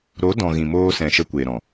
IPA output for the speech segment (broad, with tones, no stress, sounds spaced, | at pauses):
ɾ o˨˦ d ɔ̃˨ ɣ ĩ˨ m oː˧ s ɛ̃˨ ʃ ə˧ kʷ eː˨ ɾ ɔ̃˨